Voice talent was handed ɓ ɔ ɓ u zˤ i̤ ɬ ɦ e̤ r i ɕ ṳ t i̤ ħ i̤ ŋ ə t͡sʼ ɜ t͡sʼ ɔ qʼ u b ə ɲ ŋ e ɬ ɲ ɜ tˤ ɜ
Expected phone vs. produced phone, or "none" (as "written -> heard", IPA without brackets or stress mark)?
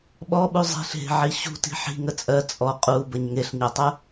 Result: r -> ʕ